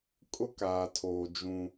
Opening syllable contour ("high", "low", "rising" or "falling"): high